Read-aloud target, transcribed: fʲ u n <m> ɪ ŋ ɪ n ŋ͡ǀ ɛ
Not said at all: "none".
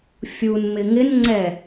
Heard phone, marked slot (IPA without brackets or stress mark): m